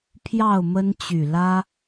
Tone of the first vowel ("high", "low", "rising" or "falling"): falling